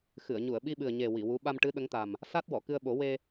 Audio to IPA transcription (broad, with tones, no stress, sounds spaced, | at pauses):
x ɨ˨˩˨ ə̯ ɲ u˨˩˨ ə̯ ɓ i˧ ɓ ɨ˨˩ ə̯ ɲ e˨˩ w i˨˩˨ w u˧˥ ɓ a˧ m ʈ ɨ˧˥ ɗ ə˧˥ ŋ t̪ a˨˩ m | s a˦˥ t̚ w ɔ˨˩˨ k ɨ˧ ə̯ ɓ o˨˩˦ w e˧